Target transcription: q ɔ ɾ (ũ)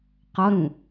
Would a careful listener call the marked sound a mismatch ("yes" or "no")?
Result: no